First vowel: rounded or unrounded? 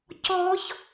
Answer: rounded